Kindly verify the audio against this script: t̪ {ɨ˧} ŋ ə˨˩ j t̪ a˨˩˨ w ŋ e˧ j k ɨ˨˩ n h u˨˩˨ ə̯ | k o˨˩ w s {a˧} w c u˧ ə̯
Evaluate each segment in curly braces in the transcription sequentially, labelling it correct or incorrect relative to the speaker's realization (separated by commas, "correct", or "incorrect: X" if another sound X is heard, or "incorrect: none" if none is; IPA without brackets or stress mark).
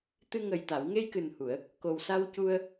correct, correct